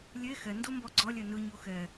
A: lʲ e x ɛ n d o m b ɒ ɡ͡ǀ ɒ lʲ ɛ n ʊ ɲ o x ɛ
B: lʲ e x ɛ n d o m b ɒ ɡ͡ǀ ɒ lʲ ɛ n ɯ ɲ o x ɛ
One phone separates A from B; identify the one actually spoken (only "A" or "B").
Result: B